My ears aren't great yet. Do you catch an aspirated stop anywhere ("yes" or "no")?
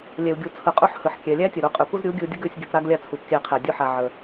yes